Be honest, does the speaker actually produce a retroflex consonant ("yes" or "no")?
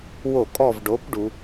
yes